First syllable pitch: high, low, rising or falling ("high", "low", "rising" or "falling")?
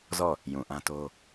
falling